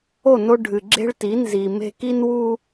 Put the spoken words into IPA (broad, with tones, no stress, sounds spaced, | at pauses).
o˦˨ n o˦ ɖʱ ɨ˨ ɡ͡ǁ e̤˦ ɭ t i˨˦ n z i˨ m e̤˦ k i˦ n w u˦